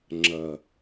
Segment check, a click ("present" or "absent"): present